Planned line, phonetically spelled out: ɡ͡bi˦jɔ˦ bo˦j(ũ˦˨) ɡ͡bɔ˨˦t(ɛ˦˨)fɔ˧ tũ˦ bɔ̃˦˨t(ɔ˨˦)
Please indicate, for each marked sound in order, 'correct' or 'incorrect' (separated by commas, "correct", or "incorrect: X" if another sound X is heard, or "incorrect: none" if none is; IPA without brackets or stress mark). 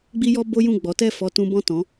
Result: correct, correct, incorrect: ɔ̃˨˦